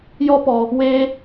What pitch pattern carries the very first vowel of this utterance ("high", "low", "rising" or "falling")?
high